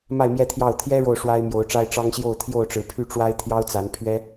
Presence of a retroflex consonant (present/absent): present